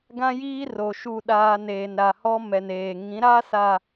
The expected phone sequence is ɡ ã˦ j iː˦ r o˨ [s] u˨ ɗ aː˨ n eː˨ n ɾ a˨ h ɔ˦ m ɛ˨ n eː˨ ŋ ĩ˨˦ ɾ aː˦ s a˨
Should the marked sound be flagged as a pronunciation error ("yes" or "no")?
yes